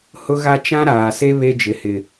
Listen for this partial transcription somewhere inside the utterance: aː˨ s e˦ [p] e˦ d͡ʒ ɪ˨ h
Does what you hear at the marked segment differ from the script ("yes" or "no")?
yes